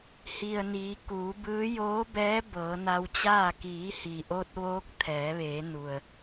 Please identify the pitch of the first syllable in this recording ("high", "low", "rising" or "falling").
low